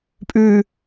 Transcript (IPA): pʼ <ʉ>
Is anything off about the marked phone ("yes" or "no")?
no